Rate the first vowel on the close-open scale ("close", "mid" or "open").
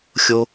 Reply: mid